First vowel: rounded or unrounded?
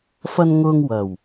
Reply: unrounded